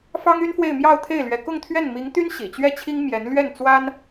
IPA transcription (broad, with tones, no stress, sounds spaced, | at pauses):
f ɑ˥ ŋ y˥ n f w e˥˧ ɪ̯ m j ɑ˥˧ ʊ̯ t̪ʰ e˥˩ ɪ̯ l ɥ ɛ˧˥ k ʊ˥˧ ŋ t̪ʰ ɥ ɛ˥˩ n m i˧˥ ŋ t̪ y˥ n ɕ ḭ˨˩ t͡ɕ ɥ ɛ˥˩ t͡ɕʰ i˥ ŋ m j ɛ˧˥ n l ɥ ɛ˥˩ n t͡s w a˥ n